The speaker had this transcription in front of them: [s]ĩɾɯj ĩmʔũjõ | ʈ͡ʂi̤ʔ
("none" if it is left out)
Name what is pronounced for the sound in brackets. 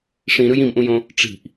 ʂ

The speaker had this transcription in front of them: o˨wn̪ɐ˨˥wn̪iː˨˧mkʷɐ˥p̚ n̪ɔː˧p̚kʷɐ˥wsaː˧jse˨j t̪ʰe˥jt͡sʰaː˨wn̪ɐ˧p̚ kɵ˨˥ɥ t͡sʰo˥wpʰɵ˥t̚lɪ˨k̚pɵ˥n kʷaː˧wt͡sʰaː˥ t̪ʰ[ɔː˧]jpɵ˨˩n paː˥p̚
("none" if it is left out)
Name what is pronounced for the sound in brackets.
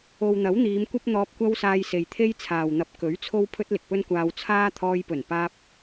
ɔː˧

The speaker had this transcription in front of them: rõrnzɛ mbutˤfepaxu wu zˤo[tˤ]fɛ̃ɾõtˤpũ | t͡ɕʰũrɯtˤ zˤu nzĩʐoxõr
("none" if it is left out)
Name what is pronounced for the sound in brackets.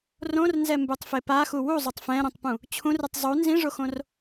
tˤ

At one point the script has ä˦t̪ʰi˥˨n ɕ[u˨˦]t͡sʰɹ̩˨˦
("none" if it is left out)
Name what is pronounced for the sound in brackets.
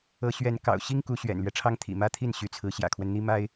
y˨˦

